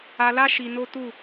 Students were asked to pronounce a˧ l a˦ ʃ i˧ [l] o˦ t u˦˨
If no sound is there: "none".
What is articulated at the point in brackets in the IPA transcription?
n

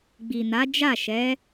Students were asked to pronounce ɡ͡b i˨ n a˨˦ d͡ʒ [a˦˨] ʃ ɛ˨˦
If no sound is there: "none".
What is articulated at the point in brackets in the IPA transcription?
a˦˨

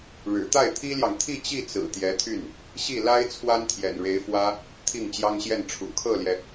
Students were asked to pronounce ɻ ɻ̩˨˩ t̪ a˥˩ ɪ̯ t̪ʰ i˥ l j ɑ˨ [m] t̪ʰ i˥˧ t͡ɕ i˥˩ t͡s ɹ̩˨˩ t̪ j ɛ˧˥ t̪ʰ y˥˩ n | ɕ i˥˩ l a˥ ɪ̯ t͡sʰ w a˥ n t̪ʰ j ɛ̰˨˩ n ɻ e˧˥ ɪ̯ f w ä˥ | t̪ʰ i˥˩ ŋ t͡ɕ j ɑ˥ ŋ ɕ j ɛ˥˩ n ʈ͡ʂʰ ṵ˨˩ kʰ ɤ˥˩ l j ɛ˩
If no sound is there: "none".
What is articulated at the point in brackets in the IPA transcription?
ŋ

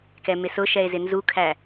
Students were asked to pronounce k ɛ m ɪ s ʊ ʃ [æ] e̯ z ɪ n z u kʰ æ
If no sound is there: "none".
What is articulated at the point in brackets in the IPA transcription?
ɛ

